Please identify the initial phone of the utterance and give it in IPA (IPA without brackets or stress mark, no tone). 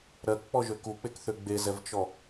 ɾ